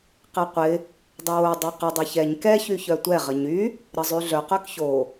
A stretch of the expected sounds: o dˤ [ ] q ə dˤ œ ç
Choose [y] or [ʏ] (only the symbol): y